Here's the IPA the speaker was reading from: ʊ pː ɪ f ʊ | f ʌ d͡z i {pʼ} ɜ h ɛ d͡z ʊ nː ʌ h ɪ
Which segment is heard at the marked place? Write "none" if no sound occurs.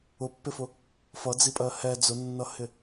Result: pʼ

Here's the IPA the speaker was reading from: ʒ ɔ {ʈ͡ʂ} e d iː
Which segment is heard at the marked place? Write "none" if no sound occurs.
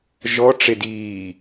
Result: ʈ͡ʂ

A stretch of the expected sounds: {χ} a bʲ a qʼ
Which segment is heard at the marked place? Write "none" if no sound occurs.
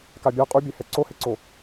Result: k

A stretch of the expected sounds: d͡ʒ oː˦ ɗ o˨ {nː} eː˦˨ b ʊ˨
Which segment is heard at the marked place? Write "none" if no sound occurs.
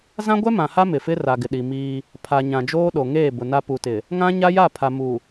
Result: ŋ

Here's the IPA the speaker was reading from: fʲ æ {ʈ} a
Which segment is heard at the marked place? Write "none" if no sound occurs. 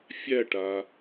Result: ʈ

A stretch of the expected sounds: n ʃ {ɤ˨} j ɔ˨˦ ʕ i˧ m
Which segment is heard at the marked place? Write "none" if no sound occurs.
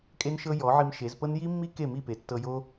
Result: ɤ˦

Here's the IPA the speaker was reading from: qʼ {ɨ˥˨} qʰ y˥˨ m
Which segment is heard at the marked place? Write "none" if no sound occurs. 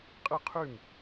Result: ɨ˥˨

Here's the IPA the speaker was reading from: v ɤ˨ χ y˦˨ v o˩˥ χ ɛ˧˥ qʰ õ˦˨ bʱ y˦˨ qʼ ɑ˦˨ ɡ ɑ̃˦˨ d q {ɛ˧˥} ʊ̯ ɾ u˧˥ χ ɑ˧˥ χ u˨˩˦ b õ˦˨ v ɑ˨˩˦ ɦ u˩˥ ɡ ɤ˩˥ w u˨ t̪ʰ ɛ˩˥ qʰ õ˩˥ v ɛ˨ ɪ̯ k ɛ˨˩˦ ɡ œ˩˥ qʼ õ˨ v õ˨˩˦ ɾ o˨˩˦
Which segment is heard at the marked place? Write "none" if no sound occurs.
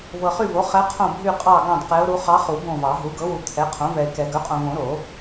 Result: ɛ˧˥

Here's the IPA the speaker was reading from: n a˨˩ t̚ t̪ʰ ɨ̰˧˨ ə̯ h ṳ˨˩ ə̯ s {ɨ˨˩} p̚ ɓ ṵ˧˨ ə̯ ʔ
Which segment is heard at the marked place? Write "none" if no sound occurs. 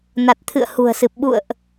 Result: ɨ˨˩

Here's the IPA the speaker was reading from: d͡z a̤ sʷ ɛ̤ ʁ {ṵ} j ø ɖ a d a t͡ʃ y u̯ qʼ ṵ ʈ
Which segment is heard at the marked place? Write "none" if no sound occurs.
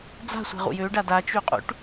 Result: ṵ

